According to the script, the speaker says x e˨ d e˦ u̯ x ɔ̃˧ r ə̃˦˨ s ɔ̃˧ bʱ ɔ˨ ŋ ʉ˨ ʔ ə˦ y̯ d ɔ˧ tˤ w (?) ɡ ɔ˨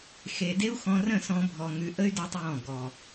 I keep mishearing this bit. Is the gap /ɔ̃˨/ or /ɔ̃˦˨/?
ɔ̃˦˨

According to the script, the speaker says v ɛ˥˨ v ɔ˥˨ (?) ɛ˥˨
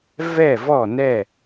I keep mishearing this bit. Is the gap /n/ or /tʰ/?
n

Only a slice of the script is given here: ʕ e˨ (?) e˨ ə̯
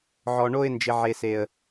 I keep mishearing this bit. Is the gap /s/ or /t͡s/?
s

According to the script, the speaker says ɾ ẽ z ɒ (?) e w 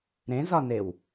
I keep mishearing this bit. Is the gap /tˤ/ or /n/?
n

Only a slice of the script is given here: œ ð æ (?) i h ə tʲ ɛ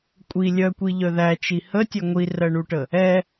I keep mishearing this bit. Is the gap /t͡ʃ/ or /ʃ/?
t͡ʃ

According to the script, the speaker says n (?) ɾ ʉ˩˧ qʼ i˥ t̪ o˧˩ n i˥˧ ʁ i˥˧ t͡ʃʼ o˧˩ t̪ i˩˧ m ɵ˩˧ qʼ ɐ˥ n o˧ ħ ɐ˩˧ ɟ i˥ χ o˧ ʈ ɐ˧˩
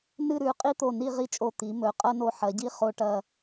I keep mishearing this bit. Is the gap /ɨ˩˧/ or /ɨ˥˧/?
ɨ˥˧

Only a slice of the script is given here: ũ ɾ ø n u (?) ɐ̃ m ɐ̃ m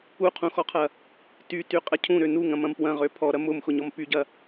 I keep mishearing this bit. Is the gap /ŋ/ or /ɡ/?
ŋ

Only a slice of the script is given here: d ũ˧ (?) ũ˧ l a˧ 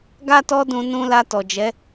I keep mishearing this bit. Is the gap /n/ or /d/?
n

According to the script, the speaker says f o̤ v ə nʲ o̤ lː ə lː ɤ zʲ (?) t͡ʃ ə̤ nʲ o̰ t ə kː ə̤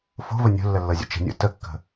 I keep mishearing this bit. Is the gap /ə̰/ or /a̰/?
ə̰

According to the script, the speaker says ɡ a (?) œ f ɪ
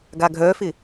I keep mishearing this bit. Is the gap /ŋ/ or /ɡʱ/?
ɡʱ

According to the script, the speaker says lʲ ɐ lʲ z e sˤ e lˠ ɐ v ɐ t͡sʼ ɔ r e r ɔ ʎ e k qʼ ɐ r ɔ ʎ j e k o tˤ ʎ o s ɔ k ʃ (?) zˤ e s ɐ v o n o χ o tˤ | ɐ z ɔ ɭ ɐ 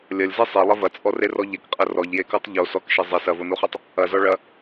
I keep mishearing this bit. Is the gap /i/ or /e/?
e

